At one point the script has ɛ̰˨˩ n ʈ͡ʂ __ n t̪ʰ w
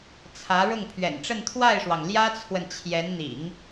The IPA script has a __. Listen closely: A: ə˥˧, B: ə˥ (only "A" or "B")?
A